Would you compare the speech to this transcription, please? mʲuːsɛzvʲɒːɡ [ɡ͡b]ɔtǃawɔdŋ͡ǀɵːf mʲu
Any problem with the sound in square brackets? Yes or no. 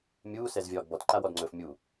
yes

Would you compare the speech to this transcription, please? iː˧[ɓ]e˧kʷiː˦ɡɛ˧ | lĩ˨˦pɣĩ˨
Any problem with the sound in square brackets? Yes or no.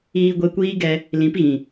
yes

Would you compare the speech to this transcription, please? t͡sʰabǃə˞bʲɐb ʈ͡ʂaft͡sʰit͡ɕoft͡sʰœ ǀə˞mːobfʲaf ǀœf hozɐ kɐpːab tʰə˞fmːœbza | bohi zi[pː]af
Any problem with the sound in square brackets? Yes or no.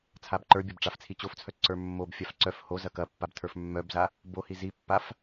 no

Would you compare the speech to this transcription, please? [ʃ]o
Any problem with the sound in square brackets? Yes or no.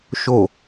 no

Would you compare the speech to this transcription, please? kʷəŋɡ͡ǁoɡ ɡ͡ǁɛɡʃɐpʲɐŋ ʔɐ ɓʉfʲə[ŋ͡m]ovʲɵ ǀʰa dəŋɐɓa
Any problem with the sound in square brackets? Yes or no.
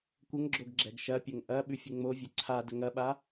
no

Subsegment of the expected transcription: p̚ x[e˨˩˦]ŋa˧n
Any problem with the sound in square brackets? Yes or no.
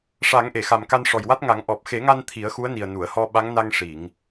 no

